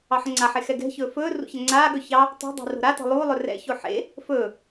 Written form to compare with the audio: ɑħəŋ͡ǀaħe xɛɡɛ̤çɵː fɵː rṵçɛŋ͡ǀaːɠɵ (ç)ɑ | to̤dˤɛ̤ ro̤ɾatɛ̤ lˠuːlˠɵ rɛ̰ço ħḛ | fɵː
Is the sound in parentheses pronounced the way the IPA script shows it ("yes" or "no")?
yes